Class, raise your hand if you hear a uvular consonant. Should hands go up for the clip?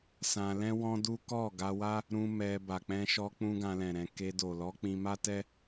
no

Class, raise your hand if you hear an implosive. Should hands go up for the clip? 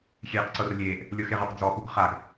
no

